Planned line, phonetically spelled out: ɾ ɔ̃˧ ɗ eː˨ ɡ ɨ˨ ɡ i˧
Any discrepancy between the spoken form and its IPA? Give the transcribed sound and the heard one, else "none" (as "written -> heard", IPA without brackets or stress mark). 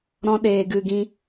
i˧ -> ĩ˧